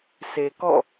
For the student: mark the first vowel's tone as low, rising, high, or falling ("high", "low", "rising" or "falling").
low